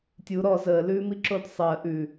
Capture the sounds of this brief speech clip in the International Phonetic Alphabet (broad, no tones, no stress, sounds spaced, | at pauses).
tʲ u ɾ ɔ z əː l ʉː m i ǁ o d sˤ əː ʔ ʉ